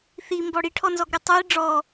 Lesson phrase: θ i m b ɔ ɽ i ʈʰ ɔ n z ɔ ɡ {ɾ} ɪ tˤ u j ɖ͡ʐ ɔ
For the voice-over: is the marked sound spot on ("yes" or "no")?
yes